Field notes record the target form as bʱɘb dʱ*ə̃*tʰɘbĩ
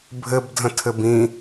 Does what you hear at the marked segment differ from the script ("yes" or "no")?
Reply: no